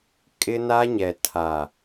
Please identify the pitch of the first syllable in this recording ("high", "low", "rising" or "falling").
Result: high